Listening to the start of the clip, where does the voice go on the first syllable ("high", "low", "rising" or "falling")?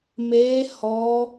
high